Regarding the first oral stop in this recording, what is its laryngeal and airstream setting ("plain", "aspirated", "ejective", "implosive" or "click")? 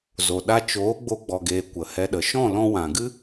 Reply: implosive